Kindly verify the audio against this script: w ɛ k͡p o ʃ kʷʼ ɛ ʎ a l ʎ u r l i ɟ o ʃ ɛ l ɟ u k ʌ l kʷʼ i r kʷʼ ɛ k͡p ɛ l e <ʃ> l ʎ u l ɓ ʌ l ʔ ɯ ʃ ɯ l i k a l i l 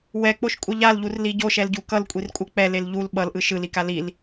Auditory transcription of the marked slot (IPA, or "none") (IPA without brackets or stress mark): none